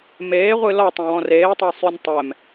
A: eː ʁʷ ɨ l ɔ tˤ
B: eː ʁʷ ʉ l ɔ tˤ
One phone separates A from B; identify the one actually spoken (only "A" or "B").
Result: A